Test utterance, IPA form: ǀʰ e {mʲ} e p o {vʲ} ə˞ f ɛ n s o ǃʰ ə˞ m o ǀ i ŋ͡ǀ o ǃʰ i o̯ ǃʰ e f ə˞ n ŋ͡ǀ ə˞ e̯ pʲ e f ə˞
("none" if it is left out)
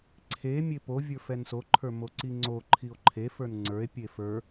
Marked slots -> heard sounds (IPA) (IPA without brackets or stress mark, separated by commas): mʲ, vʲ